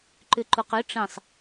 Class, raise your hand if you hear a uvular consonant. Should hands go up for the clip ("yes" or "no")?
yes